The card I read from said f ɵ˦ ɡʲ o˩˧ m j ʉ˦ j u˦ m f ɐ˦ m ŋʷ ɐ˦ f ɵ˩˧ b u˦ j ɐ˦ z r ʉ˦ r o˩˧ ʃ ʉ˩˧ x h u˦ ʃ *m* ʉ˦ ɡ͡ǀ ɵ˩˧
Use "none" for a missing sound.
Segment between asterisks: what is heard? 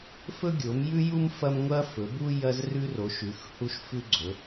f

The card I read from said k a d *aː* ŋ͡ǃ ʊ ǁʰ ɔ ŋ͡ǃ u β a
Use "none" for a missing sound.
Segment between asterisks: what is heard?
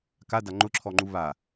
a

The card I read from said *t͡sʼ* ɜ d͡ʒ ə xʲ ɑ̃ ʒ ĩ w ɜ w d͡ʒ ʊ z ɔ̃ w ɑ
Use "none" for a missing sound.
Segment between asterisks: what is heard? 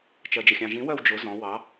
t͡ʃ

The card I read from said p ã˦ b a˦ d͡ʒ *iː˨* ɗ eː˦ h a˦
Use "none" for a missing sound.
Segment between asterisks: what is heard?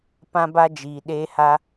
iː˧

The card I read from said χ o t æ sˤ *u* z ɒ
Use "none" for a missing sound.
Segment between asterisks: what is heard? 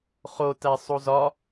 u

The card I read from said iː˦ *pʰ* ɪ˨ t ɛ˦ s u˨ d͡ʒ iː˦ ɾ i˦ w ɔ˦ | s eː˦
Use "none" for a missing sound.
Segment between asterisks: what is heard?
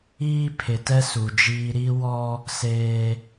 pʰ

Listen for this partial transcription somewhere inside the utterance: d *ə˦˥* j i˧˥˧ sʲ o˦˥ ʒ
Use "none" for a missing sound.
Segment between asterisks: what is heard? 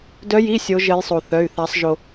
œ˦˥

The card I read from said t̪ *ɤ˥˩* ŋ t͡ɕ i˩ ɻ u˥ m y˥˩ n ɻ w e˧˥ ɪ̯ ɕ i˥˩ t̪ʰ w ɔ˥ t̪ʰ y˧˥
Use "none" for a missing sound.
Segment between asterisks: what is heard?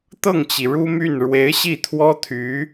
ɤ˥˩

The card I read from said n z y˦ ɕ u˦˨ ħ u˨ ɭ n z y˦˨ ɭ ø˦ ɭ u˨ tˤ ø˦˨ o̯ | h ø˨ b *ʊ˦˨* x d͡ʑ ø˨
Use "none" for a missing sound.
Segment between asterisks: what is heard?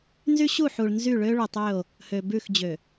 ʉ˦˨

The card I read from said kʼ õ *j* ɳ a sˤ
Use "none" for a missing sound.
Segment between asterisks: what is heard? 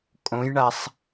j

